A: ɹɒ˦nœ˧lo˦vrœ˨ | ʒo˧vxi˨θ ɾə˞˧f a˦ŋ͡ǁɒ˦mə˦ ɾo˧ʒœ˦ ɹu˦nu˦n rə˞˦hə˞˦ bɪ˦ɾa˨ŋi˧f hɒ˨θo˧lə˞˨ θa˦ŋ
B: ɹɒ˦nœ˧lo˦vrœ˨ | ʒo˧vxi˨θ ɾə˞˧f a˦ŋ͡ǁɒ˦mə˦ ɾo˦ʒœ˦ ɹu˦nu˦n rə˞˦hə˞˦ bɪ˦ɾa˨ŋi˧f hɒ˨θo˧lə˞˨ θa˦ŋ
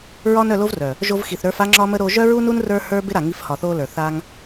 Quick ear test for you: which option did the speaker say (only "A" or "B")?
A